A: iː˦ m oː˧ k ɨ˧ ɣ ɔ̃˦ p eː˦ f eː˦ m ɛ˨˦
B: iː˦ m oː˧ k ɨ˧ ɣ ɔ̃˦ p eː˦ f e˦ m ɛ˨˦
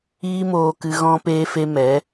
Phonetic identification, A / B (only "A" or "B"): B